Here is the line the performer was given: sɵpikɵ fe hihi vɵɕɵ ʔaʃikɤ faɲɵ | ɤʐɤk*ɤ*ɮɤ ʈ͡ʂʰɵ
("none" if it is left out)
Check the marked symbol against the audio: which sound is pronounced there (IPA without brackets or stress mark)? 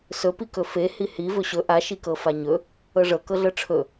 ɤ